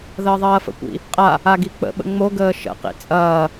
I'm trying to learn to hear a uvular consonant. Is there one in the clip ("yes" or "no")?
yes